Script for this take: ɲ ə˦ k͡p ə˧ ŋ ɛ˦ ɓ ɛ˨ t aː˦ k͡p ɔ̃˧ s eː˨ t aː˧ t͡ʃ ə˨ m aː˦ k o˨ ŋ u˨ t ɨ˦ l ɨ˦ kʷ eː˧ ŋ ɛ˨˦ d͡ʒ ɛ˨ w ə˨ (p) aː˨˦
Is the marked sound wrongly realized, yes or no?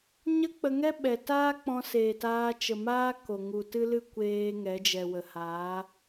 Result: yes